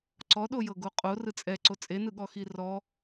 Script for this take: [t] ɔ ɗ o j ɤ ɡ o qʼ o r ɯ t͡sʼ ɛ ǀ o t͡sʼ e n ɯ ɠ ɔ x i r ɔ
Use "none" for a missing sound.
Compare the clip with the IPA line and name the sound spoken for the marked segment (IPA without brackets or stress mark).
ǀ